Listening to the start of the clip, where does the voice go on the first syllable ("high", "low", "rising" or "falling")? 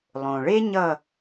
low